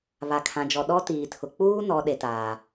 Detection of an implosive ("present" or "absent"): present